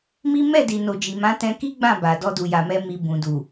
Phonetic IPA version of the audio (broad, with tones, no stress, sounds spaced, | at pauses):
m i˦ m ɛ˦˨ d i˨ n o˨ d͡ʒ i˨ m ã˨˦ t ɛ̃˧ k i˦ ɡ͡b ã˦˨ b a˨ d ɔ˧ d u˨ j a˨ m ɛ˧ m i˧ b ũ˨ d u˨